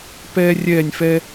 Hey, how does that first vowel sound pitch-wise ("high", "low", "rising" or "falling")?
high